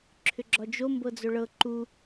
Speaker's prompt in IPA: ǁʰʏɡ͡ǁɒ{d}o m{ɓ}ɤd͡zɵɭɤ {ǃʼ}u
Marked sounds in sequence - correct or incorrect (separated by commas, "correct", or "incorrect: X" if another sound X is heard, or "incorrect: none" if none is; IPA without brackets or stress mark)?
incorrect: d͡ʒ, incorrect: b, incorrect: ǃ